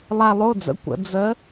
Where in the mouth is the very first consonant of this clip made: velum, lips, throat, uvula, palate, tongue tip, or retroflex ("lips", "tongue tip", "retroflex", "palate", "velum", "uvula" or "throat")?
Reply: tongue tip